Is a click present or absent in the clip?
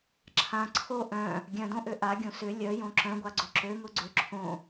present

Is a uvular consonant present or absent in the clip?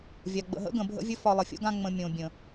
absent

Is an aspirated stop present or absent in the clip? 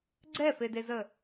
absent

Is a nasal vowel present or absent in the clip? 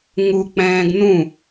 present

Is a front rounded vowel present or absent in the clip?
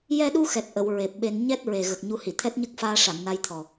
absent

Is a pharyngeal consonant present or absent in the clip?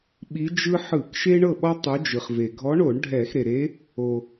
present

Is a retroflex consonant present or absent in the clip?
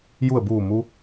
absent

